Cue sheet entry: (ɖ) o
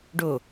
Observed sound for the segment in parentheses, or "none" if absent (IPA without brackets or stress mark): ɖ